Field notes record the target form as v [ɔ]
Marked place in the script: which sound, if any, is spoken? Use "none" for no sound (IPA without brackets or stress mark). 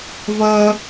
ʌ